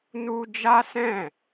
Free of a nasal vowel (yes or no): no